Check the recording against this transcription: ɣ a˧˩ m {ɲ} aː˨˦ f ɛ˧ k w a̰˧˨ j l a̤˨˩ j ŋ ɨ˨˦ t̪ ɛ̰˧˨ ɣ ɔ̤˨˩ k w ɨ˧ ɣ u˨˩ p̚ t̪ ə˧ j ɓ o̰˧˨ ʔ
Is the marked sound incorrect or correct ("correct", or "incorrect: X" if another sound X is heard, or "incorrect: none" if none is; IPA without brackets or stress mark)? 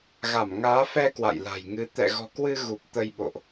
incorrect: ŋ